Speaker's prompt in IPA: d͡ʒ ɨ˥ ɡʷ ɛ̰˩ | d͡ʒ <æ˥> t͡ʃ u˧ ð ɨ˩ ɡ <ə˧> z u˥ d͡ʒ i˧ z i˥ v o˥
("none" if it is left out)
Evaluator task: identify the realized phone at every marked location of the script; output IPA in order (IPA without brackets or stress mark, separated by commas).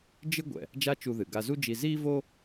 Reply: a˥, a˧